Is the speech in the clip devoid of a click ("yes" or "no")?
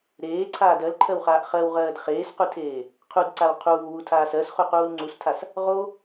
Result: no